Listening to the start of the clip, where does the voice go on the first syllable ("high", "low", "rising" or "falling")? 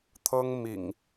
high